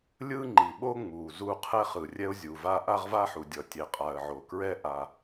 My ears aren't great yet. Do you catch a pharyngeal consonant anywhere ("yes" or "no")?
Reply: yes